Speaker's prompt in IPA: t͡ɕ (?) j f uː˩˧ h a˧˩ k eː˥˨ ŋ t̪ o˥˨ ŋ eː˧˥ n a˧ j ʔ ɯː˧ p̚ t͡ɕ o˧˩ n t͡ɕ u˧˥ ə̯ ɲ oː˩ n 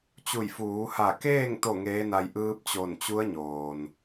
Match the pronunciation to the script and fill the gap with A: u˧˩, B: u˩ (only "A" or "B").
A